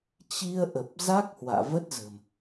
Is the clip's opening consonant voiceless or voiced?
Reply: voiceless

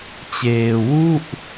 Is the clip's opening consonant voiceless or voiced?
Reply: voiceless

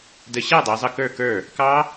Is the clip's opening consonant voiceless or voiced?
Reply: voiced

